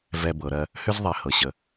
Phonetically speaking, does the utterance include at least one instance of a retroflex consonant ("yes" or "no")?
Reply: no